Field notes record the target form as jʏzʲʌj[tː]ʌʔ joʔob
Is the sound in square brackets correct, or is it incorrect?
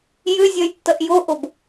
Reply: correct